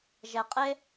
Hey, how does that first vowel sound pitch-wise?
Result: low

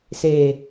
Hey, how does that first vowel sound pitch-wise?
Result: low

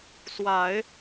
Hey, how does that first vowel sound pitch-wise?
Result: low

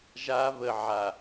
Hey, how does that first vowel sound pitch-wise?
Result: high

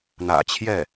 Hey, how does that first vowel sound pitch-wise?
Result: low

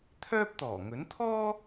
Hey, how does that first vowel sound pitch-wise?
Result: high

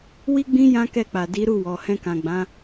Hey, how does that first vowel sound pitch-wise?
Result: high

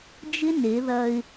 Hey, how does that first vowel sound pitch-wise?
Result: high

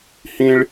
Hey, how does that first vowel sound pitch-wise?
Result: high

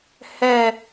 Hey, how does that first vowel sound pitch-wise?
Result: falling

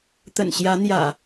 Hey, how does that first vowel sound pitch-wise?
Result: low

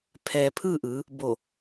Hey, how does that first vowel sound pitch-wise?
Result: low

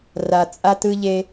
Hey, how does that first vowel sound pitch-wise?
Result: low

